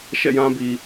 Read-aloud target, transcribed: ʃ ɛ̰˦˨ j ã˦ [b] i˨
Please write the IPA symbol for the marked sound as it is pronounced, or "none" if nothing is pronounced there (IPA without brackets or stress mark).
b